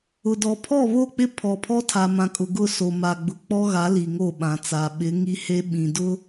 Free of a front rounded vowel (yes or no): yes